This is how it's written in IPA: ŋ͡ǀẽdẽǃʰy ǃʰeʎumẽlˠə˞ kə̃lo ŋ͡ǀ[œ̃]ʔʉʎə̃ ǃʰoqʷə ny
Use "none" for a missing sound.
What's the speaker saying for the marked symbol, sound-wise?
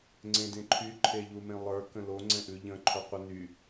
ɛ̃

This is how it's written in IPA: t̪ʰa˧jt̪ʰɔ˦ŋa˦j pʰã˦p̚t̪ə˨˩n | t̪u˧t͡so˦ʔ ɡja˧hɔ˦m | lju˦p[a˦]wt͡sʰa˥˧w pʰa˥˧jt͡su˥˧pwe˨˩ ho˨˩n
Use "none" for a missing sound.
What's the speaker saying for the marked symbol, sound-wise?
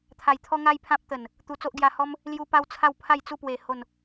a˦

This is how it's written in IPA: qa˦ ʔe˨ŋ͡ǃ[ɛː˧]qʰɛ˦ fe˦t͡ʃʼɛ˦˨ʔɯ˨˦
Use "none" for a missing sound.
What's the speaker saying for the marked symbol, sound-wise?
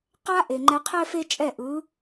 ɛ˧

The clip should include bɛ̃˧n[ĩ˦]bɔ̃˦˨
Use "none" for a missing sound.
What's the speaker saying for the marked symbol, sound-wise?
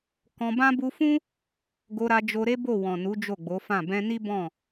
i˦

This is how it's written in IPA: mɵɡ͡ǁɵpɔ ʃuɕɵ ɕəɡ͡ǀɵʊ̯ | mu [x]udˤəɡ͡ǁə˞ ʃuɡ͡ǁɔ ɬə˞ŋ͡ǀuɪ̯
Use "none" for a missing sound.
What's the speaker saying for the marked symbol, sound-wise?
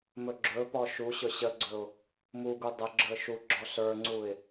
ɡ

